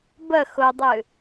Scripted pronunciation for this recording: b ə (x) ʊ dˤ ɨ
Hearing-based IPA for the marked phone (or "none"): x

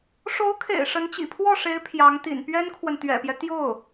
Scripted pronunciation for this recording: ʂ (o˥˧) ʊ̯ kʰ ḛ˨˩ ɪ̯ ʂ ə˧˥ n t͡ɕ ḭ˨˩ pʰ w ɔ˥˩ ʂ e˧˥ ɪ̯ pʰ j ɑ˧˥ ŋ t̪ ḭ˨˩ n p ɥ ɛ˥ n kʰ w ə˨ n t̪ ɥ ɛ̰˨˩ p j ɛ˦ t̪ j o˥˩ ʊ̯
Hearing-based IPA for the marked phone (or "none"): o˧˥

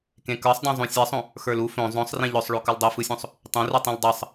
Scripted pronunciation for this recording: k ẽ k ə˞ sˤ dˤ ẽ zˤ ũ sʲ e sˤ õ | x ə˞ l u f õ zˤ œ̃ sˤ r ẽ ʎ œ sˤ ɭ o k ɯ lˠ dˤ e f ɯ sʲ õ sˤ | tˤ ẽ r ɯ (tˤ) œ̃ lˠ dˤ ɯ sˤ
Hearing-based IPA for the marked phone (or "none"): tˤ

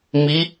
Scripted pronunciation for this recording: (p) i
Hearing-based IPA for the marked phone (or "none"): m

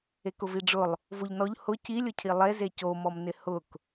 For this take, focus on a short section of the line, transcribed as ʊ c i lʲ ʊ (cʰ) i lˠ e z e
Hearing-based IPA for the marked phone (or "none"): cʰ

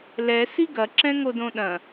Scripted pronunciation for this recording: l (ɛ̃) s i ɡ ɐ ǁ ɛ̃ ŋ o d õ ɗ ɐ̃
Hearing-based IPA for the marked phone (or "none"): ɛ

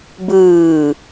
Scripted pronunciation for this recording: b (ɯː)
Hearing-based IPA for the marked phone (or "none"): ɯː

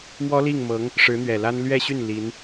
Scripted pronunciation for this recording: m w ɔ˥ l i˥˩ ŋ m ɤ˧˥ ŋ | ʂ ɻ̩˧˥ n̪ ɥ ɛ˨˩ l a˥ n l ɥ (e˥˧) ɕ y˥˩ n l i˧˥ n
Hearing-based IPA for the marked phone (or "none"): ɛ˥˧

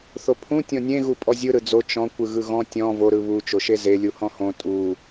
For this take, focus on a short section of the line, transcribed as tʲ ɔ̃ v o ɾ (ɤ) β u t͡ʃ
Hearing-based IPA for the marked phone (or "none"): ɯ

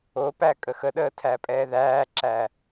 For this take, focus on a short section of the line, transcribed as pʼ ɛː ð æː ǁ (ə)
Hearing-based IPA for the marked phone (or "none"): æ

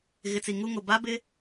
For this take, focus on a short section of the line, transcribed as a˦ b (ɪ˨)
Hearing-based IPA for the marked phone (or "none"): ɪ˦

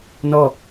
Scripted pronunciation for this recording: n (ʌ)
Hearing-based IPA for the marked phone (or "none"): ɔ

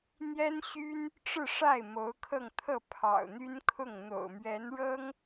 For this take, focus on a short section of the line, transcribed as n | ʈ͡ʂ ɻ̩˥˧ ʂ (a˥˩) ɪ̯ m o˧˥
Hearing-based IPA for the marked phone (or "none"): a˥˩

